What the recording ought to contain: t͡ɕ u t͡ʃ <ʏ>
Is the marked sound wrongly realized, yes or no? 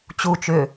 no